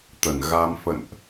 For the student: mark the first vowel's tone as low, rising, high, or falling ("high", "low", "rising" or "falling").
low